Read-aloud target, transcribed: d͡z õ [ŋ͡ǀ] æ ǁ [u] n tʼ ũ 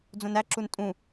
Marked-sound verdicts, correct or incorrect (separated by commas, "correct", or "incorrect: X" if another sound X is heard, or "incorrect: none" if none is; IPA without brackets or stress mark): incorrect: n, correct